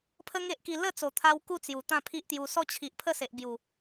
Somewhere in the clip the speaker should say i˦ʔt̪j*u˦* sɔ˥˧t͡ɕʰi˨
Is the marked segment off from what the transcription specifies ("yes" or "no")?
yes